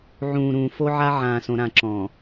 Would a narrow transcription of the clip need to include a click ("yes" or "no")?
yes